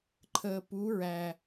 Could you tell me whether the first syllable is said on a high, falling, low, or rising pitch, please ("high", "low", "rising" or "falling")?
low